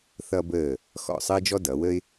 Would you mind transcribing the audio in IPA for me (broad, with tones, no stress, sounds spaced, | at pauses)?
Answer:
θ ʌ˧ b əː˧˩ | x ɔ̰˧˩ sˤ əː˥ d͡ʒ ɔ˥ d ʌ˩˧ w ə˥ ɪ̯